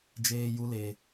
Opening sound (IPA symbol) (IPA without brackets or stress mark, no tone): d͡ʒ